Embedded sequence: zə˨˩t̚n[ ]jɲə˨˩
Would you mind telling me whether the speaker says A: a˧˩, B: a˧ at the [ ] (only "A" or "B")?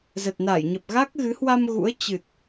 A